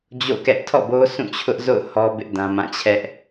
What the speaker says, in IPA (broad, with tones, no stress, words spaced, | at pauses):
d͡ʑo̰˦˨kɛ˦ʔ tʰɔ̰˦˨bo˦ sʰũ˦˨t͡ɕʰʊ˦ʔzo̰˦˨ʊ̯ hɔ˦bɪ˦ʔ dã˦mã˦˨ t͡ɕʰɛ˦ʔ